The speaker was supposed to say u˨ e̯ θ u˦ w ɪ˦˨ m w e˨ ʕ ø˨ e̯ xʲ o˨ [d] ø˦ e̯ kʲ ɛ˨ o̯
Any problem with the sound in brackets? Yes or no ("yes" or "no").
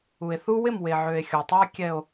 yes